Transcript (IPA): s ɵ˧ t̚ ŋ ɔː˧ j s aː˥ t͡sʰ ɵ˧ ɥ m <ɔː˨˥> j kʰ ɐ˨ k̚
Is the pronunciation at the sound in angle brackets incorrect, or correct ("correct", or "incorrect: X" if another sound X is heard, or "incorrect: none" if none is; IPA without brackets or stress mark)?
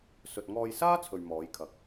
correct